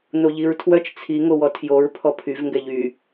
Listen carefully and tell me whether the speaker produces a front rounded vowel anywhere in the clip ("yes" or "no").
yes